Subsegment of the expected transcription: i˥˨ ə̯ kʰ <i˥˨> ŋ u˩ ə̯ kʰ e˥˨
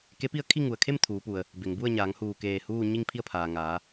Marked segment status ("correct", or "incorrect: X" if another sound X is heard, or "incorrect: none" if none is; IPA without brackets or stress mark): correct